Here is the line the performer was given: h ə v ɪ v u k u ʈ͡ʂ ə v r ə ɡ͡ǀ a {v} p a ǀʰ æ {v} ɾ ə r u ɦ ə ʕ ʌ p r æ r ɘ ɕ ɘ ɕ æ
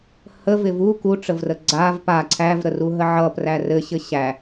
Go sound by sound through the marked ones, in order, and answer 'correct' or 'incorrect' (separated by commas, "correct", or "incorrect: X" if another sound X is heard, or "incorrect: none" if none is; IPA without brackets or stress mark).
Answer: correct, correct